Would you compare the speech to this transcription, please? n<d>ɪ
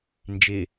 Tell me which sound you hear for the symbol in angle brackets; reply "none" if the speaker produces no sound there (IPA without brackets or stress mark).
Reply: d͡ʒ